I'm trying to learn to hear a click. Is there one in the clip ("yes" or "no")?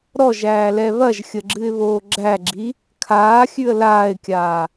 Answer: yes